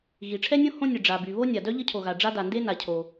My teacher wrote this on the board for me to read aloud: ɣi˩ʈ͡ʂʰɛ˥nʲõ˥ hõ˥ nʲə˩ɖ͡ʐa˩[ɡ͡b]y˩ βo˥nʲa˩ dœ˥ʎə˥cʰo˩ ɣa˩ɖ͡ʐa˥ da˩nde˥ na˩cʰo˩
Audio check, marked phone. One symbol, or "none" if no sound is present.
b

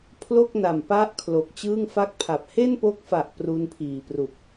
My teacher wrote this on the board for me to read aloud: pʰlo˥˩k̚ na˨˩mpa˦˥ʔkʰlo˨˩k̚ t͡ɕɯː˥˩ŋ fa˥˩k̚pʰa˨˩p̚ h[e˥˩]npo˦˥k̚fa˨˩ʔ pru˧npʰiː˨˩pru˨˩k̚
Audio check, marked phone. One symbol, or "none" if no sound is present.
e˥˩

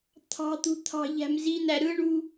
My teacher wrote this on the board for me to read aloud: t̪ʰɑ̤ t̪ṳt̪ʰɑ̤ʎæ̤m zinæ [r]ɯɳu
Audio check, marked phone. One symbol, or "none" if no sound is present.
ɾ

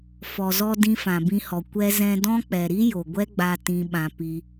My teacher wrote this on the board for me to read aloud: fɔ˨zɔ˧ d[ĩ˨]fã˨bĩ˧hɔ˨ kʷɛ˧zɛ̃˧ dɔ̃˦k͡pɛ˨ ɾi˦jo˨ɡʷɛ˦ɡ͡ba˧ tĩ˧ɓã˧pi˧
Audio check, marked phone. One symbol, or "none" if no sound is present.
ĩ˧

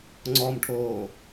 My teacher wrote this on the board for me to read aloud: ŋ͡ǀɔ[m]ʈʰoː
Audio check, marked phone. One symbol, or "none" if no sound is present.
m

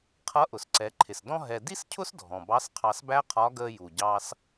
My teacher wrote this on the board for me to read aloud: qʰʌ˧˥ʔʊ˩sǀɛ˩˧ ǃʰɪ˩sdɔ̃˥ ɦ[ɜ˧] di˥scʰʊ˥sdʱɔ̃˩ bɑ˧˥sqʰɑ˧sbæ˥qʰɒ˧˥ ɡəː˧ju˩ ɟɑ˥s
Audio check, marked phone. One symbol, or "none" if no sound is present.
ɛ˧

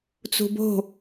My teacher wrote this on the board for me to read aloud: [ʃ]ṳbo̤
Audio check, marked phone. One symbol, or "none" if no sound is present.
t͡s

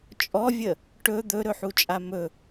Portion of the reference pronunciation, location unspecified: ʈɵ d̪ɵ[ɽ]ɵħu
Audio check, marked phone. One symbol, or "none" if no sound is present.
ɾ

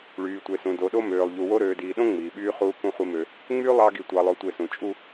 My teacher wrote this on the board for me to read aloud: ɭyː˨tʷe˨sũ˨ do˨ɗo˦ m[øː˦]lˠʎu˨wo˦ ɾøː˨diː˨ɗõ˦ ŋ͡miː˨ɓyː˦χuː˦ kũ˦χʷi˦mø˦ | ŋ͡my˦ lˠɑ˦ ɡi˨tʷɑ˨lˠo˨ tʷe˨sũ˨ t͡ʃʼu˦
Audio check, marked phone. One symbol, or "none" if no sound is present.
øː˨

